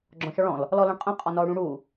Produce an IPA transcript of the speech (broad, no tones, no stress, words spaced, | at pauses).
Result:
ɡ͡ǁɔ̃ʃɔɭɔ̃l | lɔlɔ̃ɳqʼẽ qʼɔnɔʊ̯ɽũɽu